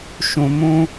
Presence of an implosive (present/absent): absent